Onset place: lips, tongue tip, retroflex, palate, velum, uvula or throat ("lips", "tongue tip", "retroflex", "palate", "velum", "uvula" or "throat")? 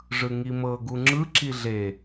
retroflex